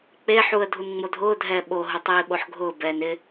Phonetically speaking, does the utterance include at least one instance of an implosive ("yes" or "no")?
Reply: yes